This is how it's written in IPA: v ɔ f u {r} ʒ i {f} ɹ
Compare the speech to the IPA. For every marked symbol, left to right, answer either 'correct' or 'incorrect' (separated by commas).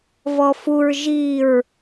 incorrect, incorrect